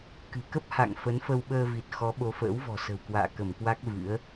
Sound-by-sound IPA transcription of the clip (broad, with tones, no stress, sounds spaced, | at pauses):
k ɨ̤˨˩ k ə˦˥ p̚ h a̰˧˨ ŋ f ə˨˦ n f ə˧ w ɓ əː˧ v i˨˩ t̚ x ɔ˨˦ ɓ o˨˦ f ə̰ː˧˥ w v ɔ̤˨˩ s ə̤˨˩ w k w a̰ː˧˨ k ə˧˩ m k w a˦˥ k̚ v ɨ̰˧˥ ə̯